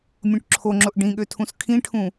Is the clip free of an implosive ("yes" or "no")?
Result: no